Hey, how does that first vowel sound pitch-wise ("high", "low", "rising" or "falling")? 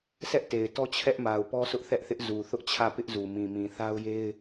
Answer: high